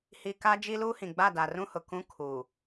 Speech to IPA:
hi˨ ka˦d͡ʒi˦luː˦hĩ˨ ɡ͡ba˦˨da˨rũ˦hʊ˨ kũ˦kʰuː˨

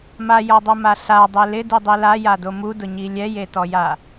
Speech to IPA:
majɔdˤoma ɬadˤe lɪdidˤi lajado mudʊɲi lʲɛjetɔja

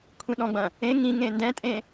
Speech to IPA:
kʷʰĩɗɔ̃ɡ͡bɐ̃ | ẽ ŋĩ ŋẽndɛ̃tʼẽ

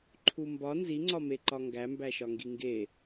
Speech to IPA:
ǃʰumbɒ nziŋ͡ǀɒ meǃɒŋɡæmbæ ʃɒŋɡiŋɡe

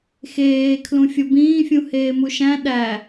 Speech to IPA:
xeː kʰlũfʲobĩː fʲũheːmuʃæ̃ ɗæ

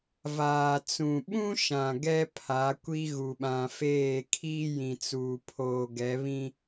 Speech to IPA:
vaː˨t͡sũ˨ɓũ˦ʃã˨ ɡɛ˦ pʰa˨˦kʷi˦ ɣu˨ɓã˨ feː˦˨kʰiː˦ jĩ˨t͡suː˨ pʰoː˦ ɡɛ˨˦βĩ˦

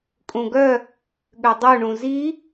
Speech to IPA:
kʼũɡœ | ɠødˤu ɳũzi

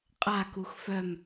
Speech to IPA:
qʼakux fœm

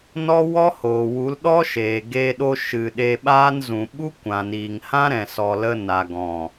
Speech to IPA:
nɔ˦wɔ˦hoː˨wu˨˦l ɗɔ˦ʃeː˨ ɡe˧ɗo˧ ʃɨ˨ ɗe˧ɓaː˦nzũ˨ ɓu˦kʷã˨niː˨ŋhã˦ ɾɛ̃˨sɔ˨lə˧ na˨ ɡɔ̃˨

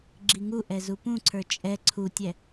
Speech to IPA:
ɡ͡ǁiŋuʔɛ zupũǀʰə˞ t͡ʃʼɛ ǀʰutʲɛ

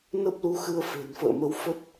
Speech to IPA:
nə˦˥p̚lu˧xɨ˧ə̯ fe̤˨˩nfə̰ː˧˨mə˨˦w fə˦˥t̚

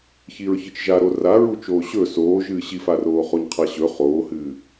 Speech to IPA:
çiɹçɨt͡ʃʒa ɾoraɹu t͡ʃoːɕɵ soːʒɨː ɕifaroː χoɲqʰaɕɵ χoːhɨː

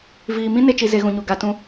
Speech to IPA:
viː˧ mĩ˦ ne˦t͡ʃi˧ ze˧ɣũ˨ɲu˨ ɡa˧ tũ˧

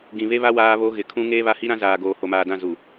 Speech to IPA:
ɡĩ˨βe˦βa˦ waː˦βo˦ ɣɪ˨kʰũ˦ ŋeː˦βa˦hi˦ɾã˦ zaː˨ɡoː˨ ho˨maː˨dã˦˨ zu˨

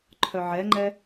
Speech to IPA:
ǃʰœʕɛŋ͡ǃɛ

